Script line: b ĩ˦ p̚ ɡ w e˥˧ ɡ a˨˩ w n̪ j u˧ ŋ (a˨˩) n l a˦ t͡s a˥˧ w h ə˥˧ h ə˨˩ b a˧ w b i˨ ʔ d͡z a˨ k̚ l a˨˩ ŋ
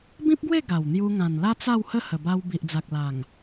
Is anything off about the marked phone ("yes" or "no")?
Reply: yes